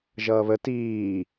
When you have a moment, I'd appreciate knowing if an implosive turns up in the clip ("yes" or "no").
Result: no